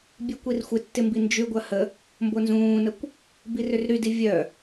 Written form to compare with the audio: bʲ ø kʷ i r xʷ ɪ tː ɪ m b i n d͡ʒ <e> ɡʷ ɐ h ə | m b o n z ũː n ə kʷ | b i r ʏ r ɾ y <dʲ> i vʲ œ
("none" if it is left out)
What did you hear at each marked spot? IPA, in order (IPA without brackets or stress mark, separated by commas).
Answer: y, d